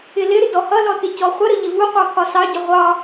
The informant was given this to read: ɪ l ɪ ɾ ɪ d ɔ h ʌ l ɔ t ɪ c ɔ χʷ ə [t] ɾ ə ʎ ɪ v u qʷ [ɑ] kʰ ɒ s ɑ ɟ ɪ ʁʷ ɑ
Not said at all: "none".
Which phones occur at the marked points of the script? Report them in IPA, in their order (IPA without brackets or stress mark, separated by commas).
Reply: none, ɑ